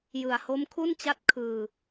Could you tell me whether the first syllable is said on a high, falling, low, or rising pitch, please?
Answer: low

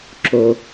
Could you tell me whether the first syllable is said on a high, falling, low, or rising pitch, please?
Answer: low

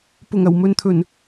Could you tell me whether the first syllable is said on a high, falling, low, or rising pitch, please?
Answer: low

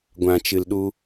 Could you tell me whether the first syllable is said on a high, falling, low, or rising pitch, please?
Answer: low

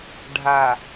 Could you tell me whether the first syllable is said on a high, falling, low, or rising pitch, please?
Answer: low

